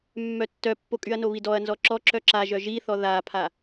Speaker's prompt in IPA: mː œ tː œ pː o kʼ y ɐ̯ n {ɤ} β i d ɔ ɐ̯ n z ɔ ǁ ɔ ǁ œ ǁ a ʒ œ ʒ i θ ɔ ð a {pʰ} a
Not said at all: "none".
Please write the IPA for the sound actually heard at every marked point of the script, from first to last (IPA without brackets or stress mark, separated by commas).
o, pʰ